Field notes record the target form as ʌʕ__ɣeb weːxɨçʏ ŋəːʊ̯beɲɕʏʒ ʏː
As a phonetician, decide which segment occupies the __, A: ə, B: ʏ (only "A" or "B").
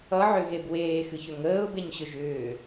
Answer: B